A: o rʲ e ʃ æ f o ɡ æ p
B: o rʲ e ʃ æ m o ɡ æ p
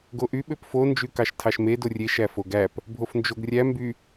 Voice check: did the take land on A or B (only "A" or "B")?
A